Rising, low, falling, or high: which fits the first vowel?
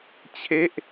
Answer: falling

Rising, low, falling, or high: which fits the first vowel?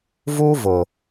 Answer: high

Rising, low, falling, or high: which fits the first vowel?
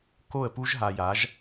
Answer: falling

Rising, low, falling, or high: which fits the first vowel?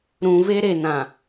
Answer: low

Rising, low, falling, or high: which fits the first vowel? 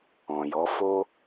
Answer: low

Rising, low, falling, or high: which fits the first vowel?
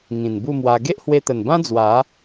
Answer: low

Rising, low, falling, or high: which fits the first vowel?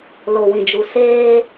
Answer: low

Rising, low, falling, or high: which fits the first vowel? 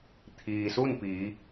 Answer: low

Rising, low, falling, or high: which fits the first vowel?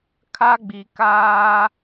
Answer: high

